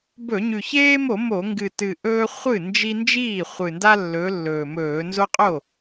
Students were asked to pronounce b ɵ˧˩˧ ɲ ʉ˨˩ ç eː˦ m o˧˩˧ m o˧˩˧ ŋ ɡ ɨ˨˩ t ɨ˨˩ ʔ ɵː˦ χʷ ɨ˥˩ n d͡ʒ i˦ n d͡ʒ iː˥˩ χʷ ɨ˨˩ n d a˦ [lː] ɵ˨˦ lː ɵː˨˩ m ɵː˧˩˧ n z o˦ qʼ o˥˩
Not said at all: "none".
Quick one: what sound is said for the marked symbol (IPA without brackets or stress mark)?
lː